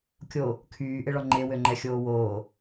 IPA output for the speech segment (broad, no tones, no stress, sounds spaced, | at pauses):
kʲ o | kʰ yː ʔ ɪ ɭ ɔ ŋ͡ǃ e w ø ŋ͡ǃ ɛ xʲ oː w oː